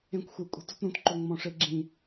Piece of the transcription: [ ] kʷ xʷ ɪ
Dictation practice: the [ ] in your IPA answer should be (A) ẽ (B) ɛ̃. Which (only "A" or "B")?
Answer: A